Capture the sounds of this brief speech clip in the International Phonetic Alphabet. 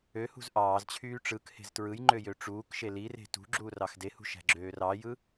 ø h ṳ z ʔ ɑː z t͡ɕʰ yː ʈ͡ʂ ɯ k h e̤ z t ɹ ɯ j ŋ͡ǃ ø j ø ʈ͡ʂ uː k ʃ e l i r e̤ t ṳ ɡ͡ǁ uː r ɑ x d e h ṳ ʃ æ̤ ɡ͡ǁ øː r ɑ j ɯ

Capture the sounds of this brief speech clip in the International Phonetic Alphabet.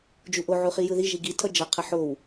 d͡ʒ u ʔ o ʕ u χ i j ɯ ð i ʒ i ɡ i tʰ ʌ d͡ʒ ʌ qʰ ʌ ħ o w

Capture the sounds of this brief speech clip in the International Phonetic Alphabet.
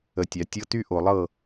ə˧˩˧ tʲ a˩˧ tʲ ɤ˧˥˧ t y˥˨ ʔ o˧˩˧ lˠ ɤ˥˨

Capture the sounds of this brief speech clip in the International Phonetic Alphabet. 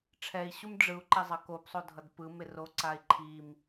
ʈ͡ʂʰ ɛ i̯ ɕ u m ɖ͡ʐ ɯ u̯ ǃ ɛ zˤ ʌ k o p sˤ o dʱ ʌ d p ɯ m e r o ǀ a i̯ ǃʰ i m

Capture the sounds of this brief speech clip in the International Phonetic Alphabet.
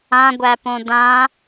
ã ɡʷ æ p õ d ã

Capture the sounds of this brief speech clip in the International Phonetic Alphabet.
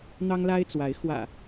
n̪ ɑ˦ ŋ l a˦ ɪ̯ t͡s w a˨˦ ɪ̯ x w ä̰˨˩

